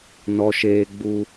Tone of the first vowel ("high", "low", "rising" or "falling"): low